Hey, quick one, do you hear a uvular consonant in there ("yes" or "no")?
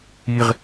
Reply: yes